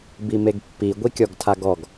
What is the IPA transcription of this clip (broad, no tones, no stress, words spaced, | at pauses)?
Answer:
bimeɡpːi ɡʷikʲɔɡtʰaɡɔɡ